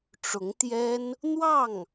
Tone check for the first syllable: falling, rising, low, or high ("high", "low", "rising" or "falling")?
rising